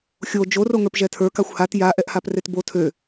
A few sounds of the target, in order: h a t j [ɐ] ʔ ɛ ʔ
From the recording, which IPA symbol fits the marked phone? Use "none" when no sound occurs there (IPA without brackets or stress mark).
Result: a